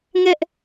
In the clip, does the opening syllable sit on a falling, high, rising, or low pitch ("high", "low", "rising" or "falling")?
high